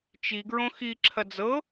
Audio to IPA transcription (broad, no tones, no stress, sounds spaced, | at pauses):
t͡ʃ i ɡ ɹ õ x i ǁʰ ɐ d͡z ɤ